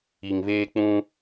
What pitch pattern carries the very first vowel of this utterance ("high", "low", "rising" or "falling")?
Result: low